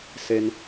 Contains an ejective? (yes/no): no